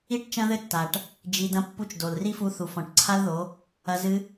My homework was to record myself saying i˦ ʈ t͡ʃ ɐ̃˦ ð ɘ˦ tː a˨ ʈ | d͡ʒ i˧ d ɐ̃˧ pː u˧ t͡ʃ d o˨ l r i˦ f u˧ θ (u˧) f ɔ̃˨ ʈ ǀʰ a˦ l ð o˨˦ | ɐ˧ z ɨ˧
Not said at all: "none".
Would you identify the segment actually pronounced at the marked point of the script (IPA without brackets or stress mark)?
u˨